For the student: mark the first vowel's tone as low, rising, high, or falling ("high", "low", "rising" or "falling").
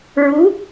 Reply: rising